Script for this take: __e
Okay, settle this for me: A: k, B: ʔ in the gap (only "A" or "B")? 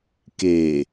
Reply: A